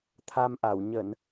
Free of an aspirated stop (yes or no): no